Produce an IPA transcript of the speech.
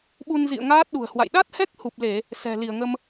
ɓu˧nzḭ˧˨ə̯ ŋaː˦˥t̚ɗṳ˨˩ə̯hwa̰˧˨j ɗa˦˥t̚hɛ˦˥k̚ hu˨˩p̚le˧˩˨ | sɛ̤˨˩ li˧˩ə̯ŋə˧m

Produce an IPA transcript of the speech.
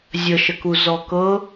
zʲəʃəku zɔkɤ

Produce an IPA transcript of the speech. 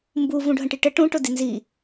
mbu vũɖʱə̃ʈiʈə ʈũ ʈʊdinzi

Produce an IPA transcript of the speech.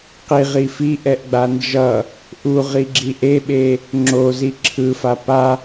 qiʁi fiʔɛʔɡ͡ba nd͡ʒʌ | ʔuʁiɡ͡ǁi ʔeɓe | ŋ͡ǁozi ǁʰɯfa pa

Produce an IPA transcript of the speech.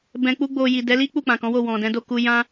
bɛ̃˧k͡pu˦ɡ͡bo˧ ji˨dɛ˨˦li˦ k͡pu˦˨k͡pã˨kɔ̃˨˦wo˦˨ wɔ̃˨dɛ̃˨˦do˦˨ ku˧jã˦

